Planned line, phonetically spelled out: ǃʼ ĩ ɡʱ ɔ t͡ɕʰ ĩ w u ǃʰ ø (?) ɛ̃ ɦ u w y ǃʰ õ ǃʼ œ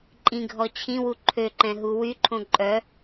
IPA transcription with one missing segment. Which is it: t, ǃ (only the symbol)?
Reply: ǃ